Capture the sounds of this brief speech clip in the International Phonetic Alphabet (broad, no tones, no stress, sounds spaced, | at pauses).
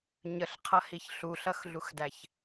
ɲ ə ɬ qʰ ʌ h i ç ɬ u ɬ ʌ x ɮ u x d æ ç